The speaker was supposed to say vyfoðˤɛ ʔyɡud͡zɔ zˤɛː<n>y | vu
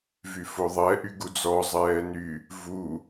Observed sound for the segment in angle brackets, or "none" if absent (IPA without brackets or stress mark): n